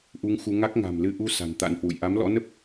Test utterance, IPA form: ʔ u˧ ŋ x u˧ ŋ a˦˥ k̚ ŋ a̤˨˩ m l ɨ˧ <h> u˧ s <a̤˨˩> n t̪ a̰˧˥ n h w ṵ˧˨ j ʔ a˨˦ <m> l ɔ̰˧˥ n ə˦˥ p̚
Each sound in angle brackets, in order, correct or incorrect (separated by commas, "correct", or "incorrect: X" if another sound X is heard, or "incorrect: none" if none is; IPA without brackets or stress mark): incorrect: ʔ, correct, correct